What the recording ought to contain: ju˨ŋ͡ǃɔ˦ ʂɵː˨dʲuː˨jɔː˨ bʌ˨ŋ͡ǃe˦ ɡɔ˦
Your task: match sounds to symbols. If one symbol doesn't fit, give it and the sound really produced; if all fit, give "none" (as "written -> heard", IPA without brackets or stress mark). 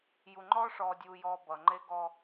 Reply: ɵː˨ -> ɔː˨